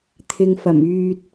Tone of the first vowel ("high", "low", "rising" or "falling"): low